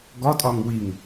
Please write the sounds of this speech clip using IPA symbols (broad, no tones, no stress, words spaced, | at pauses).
ɡɒtʼɒŋ wiŋ